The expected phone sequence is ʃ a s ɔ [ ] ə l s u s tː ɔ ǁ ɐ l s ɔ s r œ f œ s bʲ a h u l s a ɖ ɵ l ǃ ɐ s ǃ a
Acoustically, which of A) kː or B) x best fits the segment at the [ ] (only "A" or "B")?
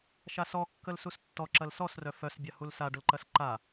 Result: A